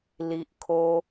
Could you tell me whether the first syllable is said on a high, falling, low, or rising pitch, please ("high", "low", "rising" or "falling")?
low